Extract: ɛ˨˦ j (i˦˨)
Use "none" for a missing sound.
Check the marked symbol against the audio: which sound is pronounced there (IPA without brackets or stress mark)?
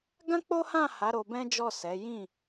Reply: ĩ˦˨